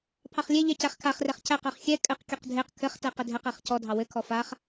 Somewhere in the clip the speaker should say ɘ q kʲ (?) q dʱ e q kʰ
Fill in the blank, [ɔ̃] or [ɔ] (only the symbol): ɔ